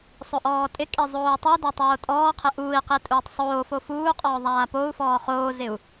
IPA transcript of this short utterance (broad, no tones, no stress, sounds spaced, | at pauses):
sˤ ʊ ʔ ɔː tʼ ɪ kʼ i zˤ oː u̯ tˤ u d ɛ tˤ oː tʼ ɔː qʰ ɪ ʔ uː i̯ q i tʼ uː tˤ sˤ oː f o f uː qʼ ɔː ðˤ aː p o u̯ f ɔː χ oː z ɪ u̯